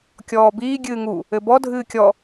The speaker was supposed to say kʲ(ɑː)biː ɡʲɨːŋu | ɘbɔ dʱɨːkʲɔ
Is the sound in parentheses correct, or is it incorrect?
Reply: incorrect